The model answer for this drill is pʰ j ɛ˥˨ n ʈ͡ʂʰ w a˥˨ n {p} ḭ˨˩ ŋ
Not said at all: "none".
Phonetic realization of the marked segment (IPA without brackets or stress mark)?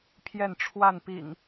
p